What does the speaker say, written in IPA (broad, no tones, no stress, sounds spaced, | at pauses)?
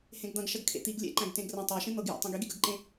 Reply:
h ẽ ɡ d̪ ɐ̃ ɡ ʃ ɐ ɡ kʰ ḛ t̪ i ɡ lʲ ḛ ǃ æ̃ ɡ t ẽ ɡ r ɐ̃ tˤ æ ʃ ẽ n̪ ɤ ɡ j æ̰ tˤ ĩ ɡ i ɡ e ɡ ə ɡ ǃ ẽ